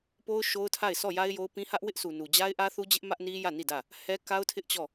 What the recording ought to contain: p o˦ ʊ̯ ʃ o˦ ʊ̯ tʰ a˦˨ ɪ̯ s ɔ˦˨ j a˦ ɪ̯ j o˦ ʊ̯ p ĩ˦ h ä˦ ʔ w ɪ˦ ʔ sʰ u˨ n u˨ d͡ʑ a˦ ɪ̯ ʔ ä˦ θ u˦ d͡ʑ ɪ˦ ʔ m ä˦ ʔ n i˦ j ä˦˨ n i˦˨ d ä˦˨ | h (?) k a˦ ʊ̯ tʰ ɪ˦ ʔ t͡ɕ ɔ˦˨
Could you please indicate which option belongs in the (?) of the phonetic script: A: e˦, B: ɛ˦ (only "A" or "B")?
B